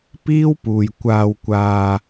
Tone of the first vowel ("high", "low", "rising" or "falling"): high